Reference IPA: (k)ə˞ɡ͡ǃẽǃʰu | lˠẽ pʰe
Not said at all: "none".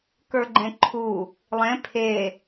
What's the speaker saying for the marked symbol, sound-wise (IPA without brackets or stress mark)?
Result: k